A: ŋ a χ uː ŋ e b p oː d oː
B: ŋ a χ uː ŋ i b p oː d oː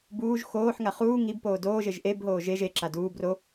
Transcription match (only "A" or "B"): B